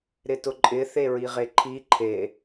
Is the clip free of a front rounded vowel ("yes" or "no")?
yes